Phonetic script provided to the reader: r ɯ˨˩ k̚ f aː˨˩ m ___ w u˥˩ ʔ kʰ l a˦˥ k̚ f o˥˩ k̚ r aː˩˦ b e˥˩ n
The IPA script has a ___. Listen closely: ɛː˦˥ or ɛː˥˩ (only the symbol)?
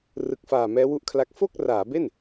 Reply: ɛː˦˥